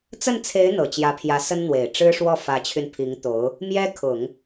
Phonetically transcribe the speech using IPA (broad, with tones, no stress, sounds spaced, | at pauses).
t͡s ə˥˩ n t͡sʰ e˧˥ ɪ̯ n̪ ɤ˨˩ t͡ɕ j ä˧˥ pʰ j ä˧˥ s ə˥ n n̪ w e˨˩ ɪ̯ ʈ͡ʂ ɻ̩˥ ʂ w ɔ˥˩ f ä˧˥ t͡ɕʰ y˧ n pʰ i˧˥ ŋ t̪ o˧˥ ʊ̯ | m j ɛ˥ kʰ ʊ˨˩˦ ŋ